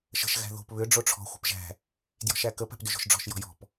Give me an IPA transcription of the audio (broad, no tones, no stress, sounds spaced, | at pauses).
ʃ ə̤ ʃ ɣ æ̤ ð o̤ p β ʏ ɖ͡ʐ o ʈ͡ʂʰ ɔ̤ xʷ ə̤ p ʒ æ̤ | d j ɔ̤ ʃ æ k ə p æ̤ p d ʏ ʒ o̤ ʃ ɖ͡ʐ ɔ̤ ʃ j ɔ̤ j ɔ̤ p